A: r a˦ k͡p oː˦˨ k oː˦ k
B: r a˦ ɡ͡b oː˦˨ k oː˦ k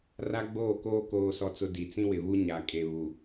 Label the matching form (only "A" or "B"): B